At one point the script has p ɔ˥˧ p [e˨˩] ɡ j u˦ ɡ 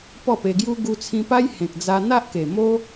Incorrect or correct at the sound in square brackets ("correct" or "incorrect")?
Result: incorrect